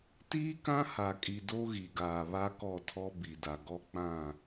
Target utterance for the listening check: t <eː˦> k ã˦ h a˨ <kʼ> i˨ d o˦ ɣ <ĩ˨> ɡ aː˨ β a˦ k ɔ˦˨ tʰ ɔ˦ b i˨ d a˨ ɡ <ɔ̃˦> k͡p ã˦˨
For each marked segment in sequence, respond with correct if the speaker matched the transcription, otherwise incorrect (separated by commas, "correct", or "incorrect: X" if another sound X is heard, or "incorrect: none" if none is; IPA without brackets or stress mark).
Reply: incorrect: iː˦, correct, incorrect: i˨, incorrect: ɔ˦